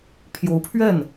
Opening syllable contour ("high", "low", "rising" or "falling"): rising